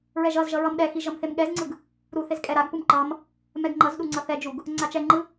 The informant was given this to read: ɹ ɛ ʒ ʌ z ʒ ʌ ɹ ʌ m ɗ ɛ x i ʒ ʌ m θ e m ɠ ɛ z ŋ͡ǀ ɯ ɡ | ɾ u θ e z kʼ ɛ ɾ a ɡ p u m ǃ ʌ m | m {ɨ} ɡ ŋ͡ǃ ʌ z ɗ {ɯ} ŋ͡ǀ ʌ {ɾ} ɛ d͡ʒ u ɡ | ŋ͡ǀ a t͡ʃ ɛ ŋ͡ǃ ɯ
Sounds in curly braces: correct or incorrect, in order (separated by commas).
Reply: incorrect, incorrect, incorrect